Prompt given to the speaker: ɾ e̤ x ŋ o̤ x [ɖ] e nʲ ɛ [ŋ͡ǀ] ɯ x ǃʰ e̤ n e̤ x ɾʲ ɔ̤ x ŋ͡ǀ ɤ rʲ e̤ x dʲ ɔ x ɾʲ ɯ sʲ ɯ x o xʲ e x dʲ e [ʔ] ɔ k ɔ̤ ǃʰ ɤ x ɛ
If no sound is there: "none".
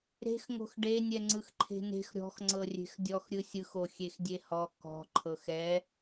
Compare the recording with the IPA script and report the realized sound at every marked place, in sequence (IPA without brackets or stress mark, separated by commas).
ɖ, ŋ͡ǀ, h